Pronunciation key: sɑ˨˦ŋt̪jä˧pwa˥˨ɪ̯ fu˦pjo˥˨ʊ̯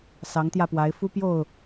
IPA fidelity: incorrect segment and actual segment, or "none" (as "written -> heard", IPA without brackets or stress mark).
a˥˨ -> a˨˦